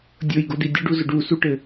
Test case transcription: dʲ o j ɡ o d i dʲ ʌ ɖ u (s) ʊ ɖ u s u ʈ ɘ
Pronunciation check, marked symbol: incorrect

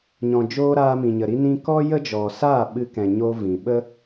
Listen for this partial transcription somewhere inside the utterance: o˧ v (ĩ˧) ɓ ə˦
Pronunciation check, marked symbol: incorrect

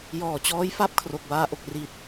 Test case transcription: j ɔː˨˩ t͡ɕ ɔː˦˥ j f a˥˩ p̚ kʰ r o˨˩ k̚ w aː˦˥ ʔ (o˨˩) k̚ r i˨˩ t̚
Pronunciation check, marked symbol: correct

